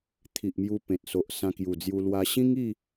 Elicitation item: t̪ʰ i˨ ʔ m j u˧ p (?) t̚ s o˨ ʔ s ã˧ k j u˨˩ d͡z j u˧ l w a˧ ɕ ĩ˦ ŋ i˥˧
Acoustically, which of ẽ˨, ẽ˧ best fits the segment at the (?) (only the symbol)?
ẽ˨